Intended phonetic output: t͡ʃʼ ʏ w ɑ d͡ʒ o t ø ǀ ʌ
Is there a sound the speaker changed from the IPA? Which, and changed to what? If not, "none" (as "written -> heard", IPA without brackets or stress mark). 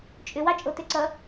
d͡ʒ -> t͡ʃʼ